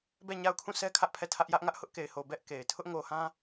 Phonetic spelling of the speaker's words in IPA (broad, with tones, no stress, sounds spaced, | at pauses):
b ɛ˦˨ ɲ a˦˨ ʊ̯ kʰ ũ˦˨ sʰ ɛ˦ kʰ ä˦ ʔ pʰ ɛ˦˨ tʰ ä˦ ʔ j ä˦ ʔ ŋ ä˦ ʔ h ʊ˦ ʔ k e˨ ɪ̯ h o˨ b ɛ˦ ʔ k e˨ ɪ̯ tʰ ʊ˦ ʔ ŋ o˨ h ã˦